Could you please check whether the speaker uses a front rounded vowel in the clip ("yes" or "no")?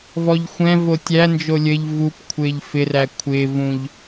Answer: no